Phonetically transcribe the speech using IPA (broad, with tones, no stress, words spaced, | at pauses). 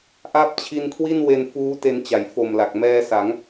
ʔa˦˥p̚ t͡ɕʰi˧nkʰwi˥˩n we˧nfuː˦˥ te˧nt͡ɕa˩˦jfo˨˩mla˨˩k̚ mɛː˧sa˩˦ŋ